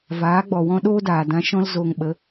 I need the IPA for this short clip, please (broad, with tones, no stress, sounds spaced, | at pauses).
v aː˨˦ ɡ͡b ɔ˨ w ɔ̃˦ ɗ oː˦ d aː˨ d ã˧ ʃ ɔ̃˦ l z oː˧ ŋ ɓ ə˨˦